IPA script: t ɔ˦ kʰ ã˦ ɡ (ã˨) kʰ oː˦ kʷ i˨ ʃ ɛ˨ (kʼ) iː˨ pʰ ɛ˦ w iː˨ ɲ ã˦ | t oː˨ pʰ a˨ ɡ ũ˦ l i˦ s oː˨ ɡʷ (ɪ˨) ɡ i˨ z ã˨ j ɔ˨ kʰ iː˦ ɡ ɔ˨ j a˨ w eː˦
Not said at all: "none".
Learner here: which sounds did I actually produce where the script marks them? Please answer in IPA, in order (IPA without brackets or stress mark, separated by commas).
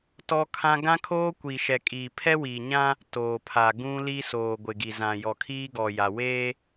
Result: ã˦, kʼ, ɪ˨